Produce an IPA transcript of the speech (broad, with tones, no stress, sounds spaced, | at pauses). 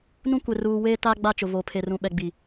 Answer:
n ũ˦ kʷ e˨ r uː˨ w eː˦ t a˦ ɡ͡b a˦˨ t͡ʃ ʊ˨ β o˨ pʰ e˨ r ũ˨ ɓ ɛ˨ ɡ͡b i˨